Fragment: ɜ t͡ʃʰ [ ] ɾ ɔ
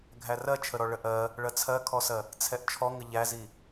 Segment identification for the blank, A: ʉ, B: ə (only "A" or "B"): B